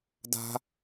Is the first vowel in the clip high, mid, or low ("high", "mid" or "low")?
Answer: low